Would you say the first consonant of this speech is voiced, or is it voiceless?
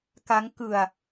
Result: voiceless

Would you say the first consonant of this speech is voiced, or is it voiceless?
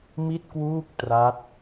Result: voiced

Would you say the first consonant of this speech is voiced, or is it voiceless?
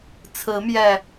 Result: voiceless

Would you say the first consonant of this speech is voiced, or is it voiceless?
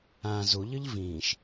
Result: voiced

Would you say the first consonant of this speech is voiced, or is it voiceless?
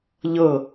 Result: voiced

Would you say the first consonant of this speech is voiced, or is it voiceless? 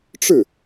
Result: voiceless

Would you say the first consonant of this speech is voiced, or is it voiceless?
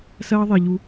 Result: voiceless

